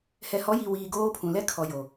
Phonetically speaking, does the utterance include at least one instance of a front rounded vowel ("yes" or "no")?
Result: no